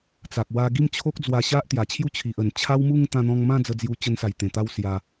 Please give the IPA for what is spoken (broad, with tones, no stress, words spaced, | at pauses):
t͡sa˨k̚wa˧ ɡi˥˧mt͡ɕʰo˦k̚d͡zwa˧ ɕa˦ʔt̪ja˨˩t͡ɕʰju˥˧t͡ɕʰi˨ʔ ə˨˩n t͡ɕʰa˦wmu˥˧ŋ t̪ã˧n̪ɔ̃˧ŋmã˥˧ d͡zə˧d͡zju˧t͡ɕə˧nsa˨˩j t̪ẽ˨˩t̪a˧w sja˧